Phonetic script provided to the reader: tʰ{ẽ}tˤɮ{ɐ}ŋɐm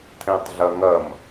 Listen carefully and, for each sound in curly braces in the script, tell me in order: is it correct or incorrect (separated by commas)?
correct, correct